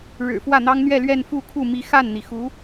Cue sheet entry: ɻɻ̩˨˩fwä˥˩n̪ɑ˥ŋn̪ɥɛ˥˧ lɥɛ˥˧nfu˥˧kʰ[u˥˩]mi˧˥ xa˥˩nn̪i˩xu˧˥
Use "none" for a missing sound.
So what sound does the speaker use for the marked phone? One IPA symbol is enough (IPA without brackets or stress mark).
u˥˩